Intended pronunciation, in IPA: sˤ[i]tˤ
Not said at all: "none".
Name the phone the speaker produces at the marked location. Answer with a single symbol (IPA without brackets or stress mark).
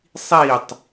i